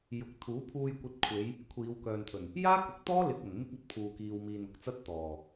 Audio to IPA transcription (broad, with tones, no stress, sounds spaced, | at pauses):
j ʊ˧ k̚ t̪ʰ uː˨˥ pʰ uː˧ j kʷ ɐ˧ t̚ kʷʰ e˨˧ j | kʷʰ iː˨˧ w k œː˨ n t̪ʰ ɵ˨˩ n | j aː˥ k ʊ˨˥ k̚ t̪ ɔː˥ l ɪ˧ k̚ ɐ˨˩ n m ɪ˥ k̚ ɐ˨˥ t̚ pʰ uː˨ k iː˨ w m iː˨ n ʊ˨ k̚ t͡s ɐ˥ t̚ t̪ ɔː˨˩